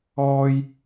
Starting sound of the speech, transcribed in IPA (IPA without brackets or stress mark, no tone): ɔː